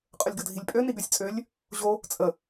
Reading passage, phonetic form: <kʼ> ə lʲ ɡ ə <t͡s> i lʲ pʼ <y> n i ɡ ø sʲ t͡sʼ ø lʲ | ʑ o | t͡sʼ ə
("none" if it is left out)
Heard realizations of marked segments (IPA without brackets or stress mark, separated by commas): qʼ, dʱ, ø